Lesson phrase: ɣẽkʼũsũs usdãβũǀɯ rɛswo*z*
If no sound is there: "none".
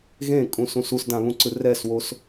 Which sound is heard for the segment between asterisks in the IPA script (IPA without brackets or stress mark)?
s